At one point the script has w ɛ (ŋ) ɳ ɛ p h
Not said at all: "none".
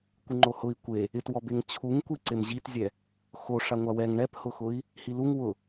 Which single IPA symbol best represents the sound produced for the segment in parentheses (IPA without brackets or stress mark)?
ŋ